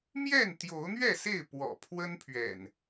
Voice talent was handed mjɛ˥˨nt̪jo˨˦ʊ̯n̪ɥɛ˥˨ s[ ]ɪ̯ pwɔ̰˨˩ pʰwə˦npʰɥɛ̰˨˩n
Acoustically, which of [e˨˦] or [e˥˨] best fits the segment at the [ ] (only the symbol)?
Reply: e˥˨